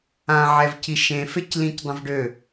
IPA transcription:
ã ʕ ɛ v c i ʃ ẽ f e c l ĩ c dˤ ə̃ v ɖ ø

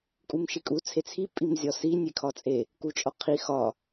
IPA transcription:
kʼ u m ʃ i kʼ u t͡sʰ e t͡sʰ i pʼ i m zʲ ɒ s i nʲ e kʰ ɒ t͡sʼ e | k u t͡ʃʼ ɒ qʰ i x ɒ

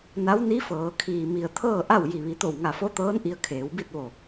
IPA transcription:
n a˧˥ w n i˧˥ f ɤː˩˧ kʰ iː˩ m i˩ ə̯ t̪ʰ ɤː˥˨ ʔ a˥˨ w j i˧˩ ʋ i˩˧ t̪ o˧˩ w ŋ a˧˩ f o˧˥ t̪ ɤː˧˥ n ʔ i˧ ə̯ kʰ eː˩˧ w b i˥˨ t̚ ʋ o˧˩

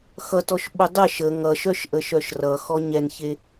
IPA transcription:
x ʌ t ɔ ʃ ɓ o dˤ ə ʃ ə ŋ ʌ ʃ œ ʃ ʔ ə ʃ œ ʃ r ʌ x ɔ ɲ ɛ n ç e

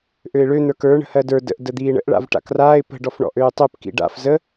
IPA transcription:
ʔ ø ɪ̯ ɭ ø n̪ ə˞ k ə˞ ɳ ə̤ h ɜ d ə˞ d ə̰ ʔ d ə d̪ iː ɳ ə̰ ʔ ɭ a̰ v ʈ a̰ k r aː ɪ̯ p ə̤ ɖ ɔ f ɳ ɔ̰ ʔ øː tˤ ø p k ḭ ɖ a̰ f z ə

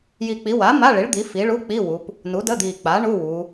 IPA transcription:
j i˨˩ k͡p i˩˧ w a˩˥ m a˧˥˧ ɭ i˩˥ ɭ d̪ i˩˧ f i˩˧ ɭ u˧˥˧ k͡p i˧˥˧ w u˩˧ p | n u˩˥ d ə˧˥˧ d̪ i˨˩ k͡p a˩˥ ɳ u˧˥˧ w u˩˧

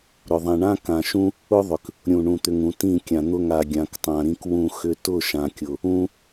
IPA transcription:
ɾ ʊ˨ ðˤ ĩ˨ ɳ ã˦ k ã˨ ʃ ũ˦ | ʊ˦ ðˤ ʏ˨ k | ɾʲ ũ˨ ɳ ũ˨ t̪ ʏ˨ ŋ ũ˨ t ĩ˦˨ kʲ ã˨ n̪ ʊ˦˨ ŋ a˨ ɡʲ ã˨ k tˤ ã˨ ɾ ĩ˦ k w ũ˦˨ x ʏ˦ t ʊ˦˨ ʃ ã˨ kʲ ʊ˨ | ũ˦

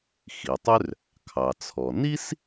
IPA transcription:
x i˩ tˤ ʏ˥ r | kʰ ɑ˩ t͡sʰ ɔ˩ n i˥ s

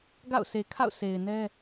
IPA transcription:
ɡ a̰˦˨ ʊ̯ s e˨ kʰ a̰˦˨ ʊ̯ sʰ e˨ ɪ̯ n ɛ˦

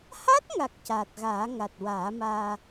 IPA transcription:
h a˦˥ t̚ ŋ a˨˩ k̚ c aː˨˩ t̚ ɣ aː˨˩˦ ŋ a˨˩ t̚ w aː˨˩˦ m aː˧

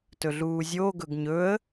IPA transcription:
t ɵ ɮ uː zʲ oː ɡ ɵ ɡ ɲ ɵ ə̯

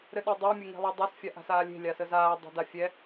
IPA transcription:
ɾ ɘ ɗ a dˤ a mʲ ɘ ŋ e̤ lˠ e dˤ a s fʲ a ʔ a̤ s aː lʲ e̤ lʲ a s ə z aː dˤ e̤ d a fʲ ɛ

